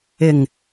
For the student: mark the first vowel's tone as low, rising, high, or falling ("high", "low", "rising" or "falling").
low